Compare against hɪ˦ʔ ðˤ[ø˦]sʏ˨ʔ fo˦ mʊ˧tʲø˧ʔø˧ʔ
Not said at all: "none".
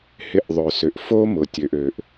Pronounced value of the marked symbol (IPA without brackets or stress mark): ø˨